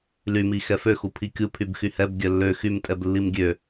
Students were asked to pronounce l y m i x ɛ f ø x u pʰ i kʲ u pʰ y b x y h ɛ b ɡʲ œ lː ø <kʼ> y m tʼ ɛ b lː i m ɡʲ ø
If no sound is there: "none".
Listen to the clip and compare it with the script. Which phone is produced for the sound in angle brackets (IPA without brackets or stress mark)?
x